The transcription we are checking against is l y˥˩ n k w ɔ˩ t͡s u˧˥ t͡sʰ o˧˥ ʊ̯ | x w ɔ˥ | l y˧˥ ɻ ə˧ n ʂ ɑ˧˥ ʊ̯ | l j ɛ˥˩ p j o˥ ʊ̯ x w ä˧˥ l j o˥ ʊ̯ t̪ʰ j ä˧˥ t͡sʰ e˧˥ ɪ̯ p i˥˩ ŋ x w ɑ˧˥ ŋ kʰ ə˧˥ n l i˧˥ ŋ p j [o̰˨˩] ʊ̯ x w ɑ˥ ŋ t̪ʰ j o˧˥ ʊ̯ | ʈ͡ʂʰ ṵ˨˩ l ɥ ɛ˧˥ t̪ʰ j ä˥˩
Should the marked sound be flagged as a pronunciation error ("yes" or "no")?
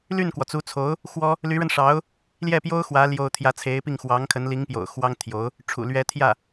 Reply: no